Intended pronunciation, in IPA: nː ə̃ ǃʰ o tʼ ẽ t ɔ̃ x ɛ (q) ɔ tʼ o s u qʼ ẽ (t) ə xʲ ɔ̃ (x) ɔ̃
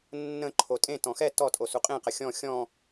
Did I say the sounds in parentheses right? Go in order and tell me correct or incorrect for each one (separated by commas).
incorrect, incorrect, incorrect